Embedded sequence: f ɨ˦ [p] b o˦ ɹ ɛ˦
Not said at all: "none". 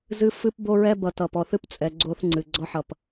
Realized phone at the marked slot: p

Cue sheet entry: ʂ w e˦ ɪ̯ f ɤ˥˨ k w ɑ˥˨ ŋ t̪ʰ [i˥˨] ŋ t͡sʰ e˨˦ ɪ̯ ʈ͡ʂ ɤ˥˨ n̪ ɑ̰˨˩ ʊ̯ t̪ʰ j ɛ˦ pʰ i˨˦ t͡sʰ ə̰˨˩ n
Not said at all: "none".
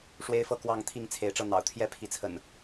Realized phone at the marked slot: i˥˨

